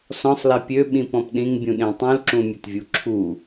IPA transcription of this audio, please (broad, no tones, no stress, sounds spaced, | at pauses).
s ɔ̃ sˤ l ɛ pʲ ø ɓ ĩ p ɔ̃ p ɗ ĩ ŋ bʲ ũ ɗ ẽ tˤ ũ l ǁ ũ mʲ ə t vʲ u ǁʰ u